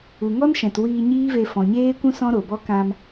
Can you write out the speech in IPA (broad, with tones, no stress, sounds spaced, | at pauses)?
u˨ ŋ ɔ˦ n ʃ ɛ̃˨ t w iː˧ ɲ iː˦ v e˧ f ɔ̃˨ ɲ eː˦ kʷ ũ˦ s ɔ̃˦ ɾ o˨ b ɔ˦ k ã˧ m